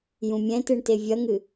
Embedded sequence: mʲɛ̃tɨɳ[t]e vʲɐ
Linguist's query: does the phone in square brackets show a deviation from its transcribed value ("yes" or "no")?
no